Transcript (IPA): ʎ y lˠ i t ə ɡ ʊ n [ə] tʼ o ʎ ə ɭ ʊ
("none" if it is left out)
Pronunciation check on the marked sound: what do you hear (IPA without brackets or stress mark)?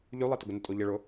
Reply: ə